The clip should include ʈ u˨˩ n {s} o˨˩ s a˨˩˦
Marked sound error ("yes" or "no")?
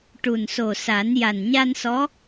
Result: no